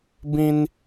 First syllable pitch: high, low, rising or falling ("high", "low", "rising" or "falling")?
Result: high